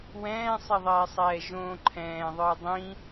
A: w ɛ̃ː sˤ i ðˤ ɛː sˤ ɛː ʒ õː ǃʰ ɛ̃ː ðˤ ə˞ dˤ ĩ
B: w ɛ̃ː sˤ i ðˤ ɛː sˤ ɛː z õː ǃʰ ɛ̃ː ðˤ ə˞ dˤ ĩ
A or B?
A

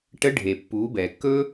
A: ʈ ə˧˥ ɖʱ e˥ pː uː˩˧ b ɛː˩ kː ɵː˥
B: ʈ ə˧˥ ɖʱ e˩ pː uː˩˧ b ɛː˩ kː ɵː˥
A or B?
B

